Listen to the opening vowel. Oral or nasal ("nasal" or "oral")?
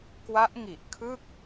oral